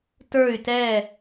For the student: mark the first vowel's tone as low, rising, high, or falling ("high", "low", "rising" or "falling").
falling